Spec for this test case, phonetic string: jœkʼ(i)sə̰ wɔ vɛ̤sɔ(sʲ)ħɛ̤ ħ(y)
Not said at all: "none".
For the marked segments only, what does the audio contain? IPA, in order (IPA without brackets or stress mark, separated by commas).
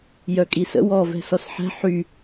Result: i, s, y